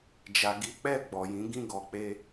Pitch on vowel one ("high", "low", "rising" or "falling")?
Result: low